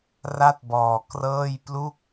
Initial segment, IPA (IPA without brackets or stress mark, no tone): r